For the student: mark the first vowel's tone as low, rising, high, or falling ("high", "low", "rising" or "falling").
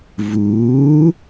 rising